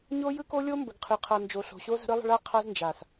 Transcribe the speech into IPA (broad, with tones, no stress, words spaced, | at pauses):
ɲo˦jɯ˦ko˦ lʲo˦mbə˨ɡ qʰɯ˨qʰa˨nd͡ʒo˨ ɬo̤˨ɕo˦ zə̤˦ɾɯ˦lˠə̤˦ɭ a˦qʰa˦z nd͡ʒa˨s